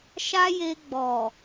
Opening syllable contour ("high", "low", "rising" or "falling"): high